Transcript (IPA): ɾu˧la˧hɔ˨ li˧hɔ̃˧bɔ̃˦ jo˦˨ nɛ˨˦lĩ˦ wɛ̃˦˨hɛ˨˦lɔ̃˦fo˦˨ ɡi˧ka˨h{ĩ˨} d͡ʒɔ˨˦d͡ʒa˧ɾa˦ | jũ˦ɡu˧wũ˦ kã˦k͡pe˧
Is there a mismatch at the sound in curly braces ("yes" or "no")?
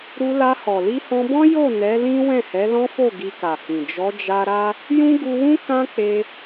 no